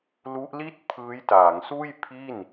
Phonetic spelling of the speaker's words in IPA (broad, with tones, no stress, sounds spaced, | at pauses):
l u˦˥ ʔ l i˥˩ t̚ pʰ ɯː˦˥ j t aː˩˦ ŋ s uː˥˩ j pʰ i˥˩ n